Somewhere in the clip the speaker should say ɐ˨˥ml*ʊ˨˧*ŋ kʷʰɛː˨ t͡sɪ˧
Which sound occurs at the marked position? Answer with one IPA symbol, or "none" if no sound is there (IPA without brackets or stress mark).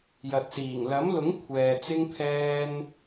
ʊ˨˥